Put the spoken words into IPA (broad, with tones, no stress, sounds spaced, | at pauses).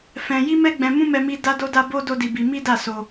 f ɛ̃˧ j i˦ m ɛ˦ ɡ͡b ɛ̃˧ m ũ˦ m ɛ˦ m i˦ d a˦ d o˦ d a˦ b o˦ d o˦ d i˧ b i˧ m i˦ d a˦˨ s o˧